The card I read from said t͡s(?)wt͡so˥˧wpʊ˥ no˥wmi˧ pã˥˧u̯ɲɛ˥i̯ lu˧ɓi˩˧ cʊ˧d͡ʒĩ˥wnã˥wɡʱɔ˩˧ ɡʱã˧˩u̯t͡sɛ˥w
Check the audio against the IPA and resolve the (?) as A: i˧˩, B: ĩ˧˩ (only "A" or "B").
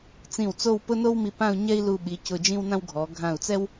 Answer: B